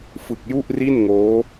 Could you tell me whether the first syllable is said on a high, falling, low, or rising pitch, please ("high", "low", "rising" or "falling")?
low